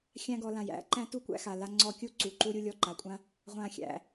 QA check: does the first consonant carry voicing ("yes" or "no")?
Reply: no